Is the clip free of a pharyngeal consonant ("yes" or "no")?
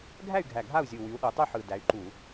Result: no